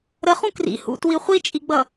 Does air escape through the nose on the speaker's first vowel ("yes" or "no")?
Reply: no